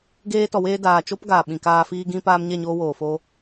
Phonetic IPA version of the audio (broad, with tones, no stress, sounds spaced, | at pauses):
ɡ eː˧ t ɔ˨ w eː˧ d aː˨ t͡ʃ o˦ p ɡ aː˨ ɓ ĩ˨ k aː˧ f iː˧ ɡ ĩ˧ p aː˧ m ɲ ɛ˦˨ ɲ oː˧ w oː˨ f o˧